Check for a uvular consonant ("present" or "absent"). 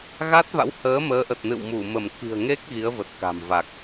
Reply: absent